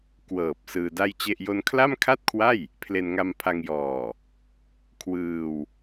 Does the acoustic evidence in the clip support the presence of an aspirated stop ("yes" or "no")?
yes